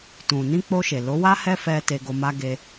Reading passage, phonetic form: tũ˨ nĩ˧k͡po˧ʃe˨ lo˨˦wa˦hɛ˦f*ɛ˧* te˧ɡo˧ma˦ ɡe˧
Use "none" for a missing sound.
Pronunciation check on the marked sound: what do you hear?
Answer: ɛ˧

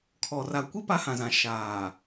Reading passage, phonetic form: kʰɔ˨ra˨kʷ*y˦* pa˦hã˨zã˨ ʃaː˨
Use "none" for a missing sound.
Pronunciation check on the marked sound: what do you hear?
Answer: i˦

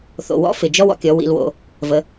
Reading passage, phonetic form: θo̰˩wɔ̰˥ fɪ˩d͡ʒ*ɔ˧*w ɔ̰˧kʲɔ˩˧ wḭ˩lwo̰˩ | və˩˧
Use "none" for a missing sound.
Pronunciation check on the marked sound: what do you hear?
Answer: ɔ˥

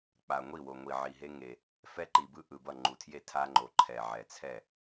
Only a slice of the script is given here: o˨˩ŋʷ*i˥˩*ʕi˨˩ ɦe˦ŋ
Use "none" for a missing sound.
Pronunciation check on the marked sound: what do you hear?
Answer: i˨˩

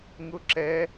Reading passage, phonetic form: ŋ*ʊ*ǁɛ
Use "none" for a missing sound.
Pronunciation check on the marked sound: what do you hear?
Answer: ʊ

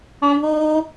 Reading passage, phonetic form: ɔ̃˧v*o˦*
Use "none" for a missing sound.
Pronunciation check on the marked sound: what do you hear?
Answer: oː˦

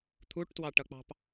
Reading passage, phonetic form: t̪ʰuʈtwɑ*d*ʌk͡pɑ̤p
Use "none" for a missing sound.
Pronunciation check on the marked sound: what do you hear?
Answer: ʈ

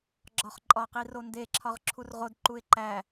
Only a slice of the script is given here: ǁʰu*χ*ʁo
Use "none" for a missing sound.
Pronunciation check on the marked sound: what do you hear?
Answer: r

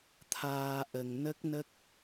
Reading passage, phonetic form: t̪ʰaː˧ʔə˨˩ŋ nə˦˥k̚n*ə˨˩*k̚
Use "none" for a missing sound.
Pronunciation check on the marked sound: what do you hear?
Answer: ə˦˥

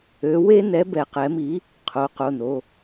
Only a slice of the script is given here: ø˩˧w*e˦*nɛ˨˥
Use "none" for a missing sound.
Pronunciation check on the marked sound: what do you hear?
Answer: e˦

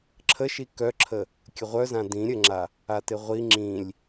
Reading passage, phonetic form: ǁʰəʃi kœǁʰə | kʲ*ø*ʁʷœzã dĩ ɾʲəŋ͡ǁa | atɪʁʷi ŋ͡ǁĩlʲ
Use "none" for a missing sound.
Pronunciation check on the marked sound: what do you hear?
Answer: ə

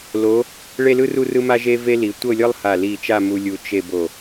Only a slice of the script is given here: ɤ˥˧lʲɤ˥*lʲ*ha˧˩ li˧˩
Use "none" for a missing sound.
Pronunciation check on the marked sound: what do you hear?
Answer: lˠ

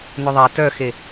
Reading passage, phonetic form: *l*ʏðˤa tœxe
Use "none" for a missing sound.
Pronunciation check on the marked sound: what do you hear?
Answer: n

